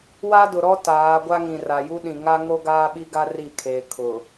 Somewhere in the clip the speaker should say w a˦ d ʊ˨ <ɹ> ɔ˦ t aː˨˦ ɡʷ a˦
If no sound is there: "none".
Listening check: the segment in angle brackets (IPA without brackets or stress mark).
ɾ